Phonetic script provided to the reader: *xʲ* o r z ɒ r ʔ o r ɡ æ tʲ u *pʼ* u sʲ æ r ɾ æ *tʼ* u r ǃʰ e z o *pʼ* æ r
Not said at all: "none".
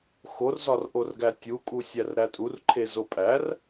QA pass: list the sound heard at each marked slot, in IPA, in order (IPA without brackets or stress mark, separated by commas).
x, kʼ, tʼ, pʼ